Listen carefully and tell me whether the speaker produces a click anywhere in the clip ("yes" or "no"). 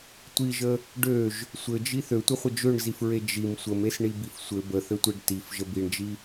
no